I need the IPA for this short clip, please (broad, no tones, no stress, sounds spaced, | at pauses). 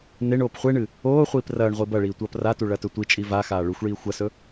n e ɳ oː p χʷ e ɳ ɨ | oː χʷ iː p r ɐː ɳ ʁʷ i b ɐ ɭ iː tʷ ɐː p r a t u ɭ ɐ t ɵ tʷ i t͡ʃʼ i v a x aː ɭ ʉ xʷ ɭ iː xʷ ɐ s ɵ